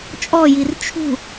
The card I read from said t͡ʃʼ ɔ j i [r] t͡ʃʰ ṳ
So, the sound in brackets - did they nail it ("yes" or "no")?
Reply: yes